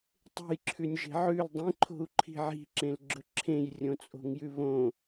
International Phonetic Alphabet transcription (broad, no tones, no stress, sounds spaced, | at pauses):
tˤ e̤ j ǁʰ ʉ nʲ ʒ e̤ ʕ ʉ l dˤ ĩ ǃʰ o̤ u̯ ǃʰ i̤ ʕ i̤ ǁ ẽ l ɡ͡ǁ ɵ ǁʰ ẽ j rʲ õ t͡sʼ o̤ ŋ j ʉ β õ